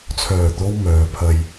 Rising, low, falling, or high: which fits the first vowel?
low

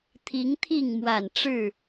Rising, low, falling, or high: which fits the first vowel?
rising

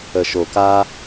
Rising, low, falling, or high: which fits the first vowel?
low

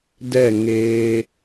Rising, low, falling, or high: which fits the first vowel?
falling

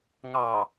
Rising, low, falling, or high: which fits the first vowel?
low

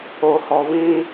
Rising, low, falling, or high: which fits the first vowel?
low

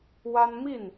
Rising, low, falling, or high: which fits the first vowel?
high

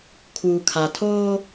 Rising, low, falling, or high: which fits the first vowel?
low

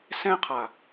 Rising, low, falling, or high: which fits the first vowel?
high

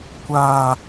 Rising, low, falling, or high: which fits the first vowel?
low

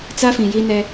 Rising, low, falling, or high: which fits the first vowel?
high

